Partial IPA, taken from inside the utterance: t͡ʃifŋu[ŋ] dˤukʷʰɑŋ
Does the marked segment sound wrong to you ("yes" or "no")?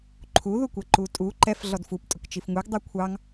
yes